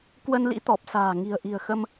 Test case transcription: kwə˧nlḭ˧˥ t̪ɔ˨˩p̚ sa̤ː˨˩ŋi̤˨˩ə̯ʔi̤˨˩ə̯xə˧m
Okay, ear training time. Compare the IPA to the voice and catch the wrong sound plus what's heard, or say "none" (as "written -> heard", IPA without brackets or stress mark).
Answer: none